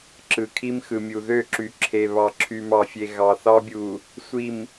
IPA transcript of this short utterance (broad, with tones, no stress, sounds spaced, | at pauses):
ǁ ɯ˨ kʰ i˦ m x ɯ˨ mʲ u˨ ð ø˦˨ ǁ y˨ ǁʰ e˨ β ɑ˨ ǁʰ y˨ m ɑ˨ fʲ e˨ ɣ ɑ˨ θ ɑ˦ bʲ u˨ | sʷ i˨ m